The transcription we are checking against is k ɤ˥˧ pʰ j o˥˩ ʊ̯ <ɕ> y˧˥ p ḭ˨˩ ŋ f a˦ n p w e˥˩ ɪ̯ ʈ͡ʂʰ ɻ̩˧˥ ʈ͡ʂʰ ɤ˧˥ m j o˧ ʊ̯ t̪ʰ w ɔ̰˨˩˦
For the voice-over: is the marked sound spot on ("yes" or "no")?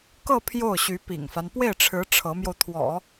yes